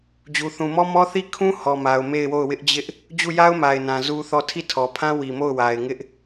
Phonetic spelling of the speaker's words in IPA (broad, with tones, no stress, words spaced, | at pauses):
d͡ʑu˨θũ˨mɔ˦mɔ˦ θi˦˨kʰũ˦ hɔ˨ma˨ʊ̯ me˦˨ɪ̯wo˦˨ʊ̯ wɪ˦ʔd͡ʑɪ˦ʔ | d͡ʑu˦˨ja˦ʊ̯ma˨ɪ̯nã˨ zu˦θɔ˦˨ tʰi˦˨tʰɔ˨pʰã˦ wi˨mo˦˨ʊ̯wa˨ɪ̯ ŋɪ˦ʔ